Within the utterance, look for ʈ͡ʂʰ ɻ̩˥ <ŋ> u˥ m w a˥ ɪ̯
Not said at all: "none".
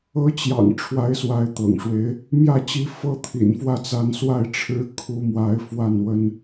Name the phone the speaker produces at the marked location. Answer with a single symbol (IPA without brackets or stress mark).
kʰ